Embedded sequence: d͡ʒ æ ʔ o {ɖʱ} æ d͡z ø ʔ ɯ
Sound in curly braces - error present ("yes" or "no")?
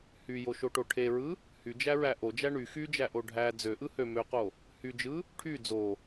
no